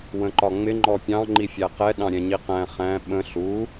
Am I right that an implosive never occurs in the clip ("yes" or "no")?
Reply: no